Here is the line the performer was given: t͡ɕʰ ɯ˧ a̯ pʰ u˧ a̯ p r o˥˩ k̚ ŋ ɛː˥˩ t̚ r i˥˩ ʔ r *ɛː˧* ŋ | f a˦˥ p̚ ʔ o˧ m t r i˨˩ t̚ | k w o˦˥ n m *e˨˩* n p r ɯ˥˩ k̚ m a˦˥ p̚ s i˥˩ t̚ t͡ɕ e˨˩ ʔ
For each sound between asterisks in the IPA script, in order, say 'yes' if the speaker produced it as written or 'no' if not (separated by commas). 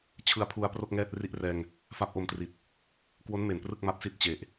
yes, yes